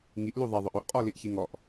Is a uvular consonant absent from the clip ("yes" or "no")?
no